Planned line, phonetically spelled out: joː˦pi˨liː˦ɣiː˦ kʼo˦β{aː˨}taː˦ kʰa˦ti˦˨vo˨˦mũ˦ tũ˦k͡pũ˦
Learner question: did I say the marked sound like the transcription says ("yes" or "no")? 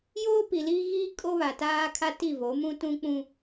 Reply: no